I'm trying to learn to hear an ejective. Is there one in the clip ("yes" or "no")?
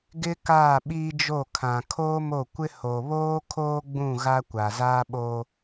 no